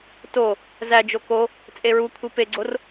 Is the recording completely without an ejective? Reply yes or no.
no